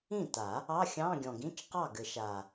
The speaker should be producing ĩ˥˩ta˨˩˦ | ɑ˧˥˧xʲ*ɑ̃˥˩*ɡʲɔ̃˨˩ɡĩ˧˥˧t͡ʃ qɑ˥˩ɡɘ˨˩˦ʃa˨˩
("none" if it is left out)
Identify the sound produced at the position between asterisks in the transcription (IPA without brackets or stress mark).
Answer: ɑ̃˧˥˧